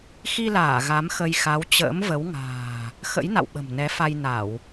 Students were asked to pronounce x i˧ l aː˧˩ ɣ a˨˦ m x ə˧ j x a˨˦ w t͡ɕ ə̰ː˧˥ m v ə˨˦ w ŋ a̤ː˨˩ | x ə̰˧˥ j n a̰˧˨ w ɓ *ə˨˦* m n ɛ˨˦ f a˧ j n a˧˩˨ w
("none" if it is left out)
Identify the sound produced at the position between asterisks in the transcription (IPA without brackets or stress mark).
ə̤˨˩